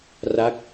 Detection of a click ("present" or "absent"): absent